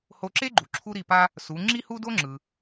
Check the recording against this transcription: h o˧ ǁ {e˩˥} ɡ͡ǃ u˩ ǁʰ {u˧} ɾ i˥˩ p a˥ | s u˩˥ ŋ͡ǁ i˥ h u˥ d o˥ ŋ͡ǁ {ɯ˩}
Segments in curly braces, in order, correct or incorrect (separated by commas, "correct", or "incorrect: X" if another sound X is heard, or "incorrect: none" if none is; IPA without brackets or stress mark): incorrect: e˥, incorrect: u˥, correct